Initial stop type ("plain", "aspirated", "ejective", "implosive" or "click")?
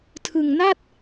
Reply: aspirated